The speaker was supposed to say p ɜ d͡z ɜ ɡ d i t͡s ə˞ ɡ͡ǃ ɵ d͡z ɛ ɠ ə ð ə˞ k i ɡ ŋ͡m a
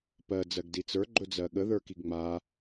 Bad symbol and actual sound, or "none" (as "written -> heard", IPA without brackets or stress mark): ɛ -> ɜ